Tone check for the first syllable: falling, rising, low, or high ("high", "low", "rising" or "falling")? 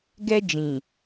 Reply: high